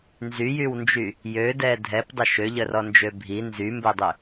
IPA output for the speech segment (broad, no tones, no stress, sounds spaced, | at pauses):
n z y j y w n d͡ʒ y | j ø d ɛ dʱ ɛ p dˤ ə ʃ ø ʎ ə r ɔ n d͡ʒ ø bʱ i n z y m b ɛ dˤ ø